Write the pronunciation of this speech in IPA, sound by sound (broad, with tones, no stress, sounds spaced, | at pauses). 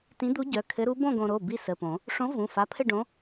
t ĩ˧˥ d̪ u˧˥ ɟ œ˩˧˩ kʰ ɘ˧˥ ɾ u˧˥ b õ˥˧ ɡ õ˧ ɾ o˩˧˩ b i˥˧ s ə˩˧˩ p õ˨˩˦ | ʂ õ˧˥ v ũ˩˧˩ f a˧˥ pʰ ɘ˥˧ ɖ õ˧˥